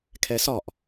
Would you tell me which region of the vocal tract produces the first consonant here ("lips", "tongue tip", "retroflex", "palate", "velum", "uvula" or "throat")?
velum